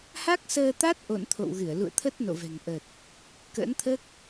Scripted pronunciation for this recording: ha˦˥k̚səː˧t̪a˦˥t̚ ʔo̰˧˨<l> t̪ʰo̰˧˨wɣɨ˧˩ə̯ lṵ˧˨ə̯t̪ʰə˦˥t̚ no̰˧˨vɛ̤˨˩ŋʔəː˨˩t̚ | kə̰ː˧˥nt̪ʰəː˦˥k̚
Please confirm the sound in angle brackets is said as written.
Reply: no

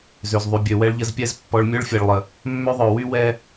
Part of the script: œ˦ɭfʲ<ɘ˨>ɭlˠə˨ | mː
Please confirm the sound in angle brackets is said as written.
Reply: no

